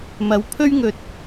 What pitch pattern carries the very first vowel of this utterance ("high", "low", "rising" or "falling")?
rising